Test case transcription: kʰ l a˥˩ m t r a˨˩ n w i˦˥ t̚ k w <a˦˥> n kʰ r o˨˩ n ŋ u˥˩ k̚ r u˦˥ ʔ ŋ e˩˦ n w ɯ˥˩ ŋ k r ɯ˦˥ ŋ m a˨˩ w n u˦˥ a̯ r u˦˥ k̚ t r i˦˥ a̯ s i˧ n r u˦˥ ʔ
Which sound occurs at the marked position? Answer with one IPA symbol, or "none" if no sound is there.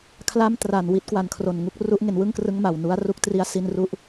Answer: a˨˩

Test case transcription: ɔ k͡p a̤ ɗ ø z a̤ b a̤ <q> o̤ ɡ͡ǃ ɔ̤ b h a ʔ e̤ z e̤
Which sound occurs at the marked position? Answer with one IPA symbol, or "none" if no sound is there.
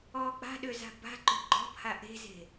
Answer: ǃ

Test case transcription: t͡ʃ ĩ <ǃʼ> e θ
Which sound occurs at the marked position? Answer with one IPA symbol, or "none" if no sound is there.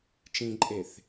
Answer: ǃʼ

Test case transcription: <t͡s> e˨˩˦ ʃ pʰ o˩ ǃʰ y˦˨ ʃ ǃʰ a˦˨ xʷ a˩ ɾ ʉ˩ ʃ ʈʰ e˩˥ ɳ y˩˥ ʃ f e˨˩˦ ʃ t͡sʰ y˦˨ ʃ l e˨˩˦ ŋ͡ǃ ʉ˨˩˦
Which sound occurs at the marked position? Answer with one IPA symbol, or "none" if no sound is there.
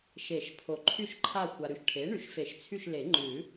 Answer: ʃ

